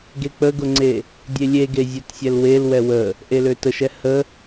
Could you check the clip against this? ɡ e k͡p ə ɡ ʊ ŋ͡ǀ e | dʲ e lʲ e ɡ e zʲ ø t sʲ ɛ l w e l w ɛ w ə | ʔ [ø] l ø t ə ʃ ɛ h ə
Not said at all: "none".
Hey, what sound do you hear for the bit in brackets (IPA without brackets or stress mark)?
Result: e